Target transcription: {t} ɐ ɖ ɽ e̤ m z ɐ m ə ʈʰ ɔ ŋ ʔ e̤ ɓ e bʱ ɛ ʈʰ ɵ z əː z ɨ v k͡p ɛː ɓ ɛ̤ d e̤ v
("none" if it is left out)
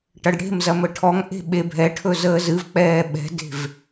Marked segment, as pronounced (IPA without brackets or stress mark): ʈ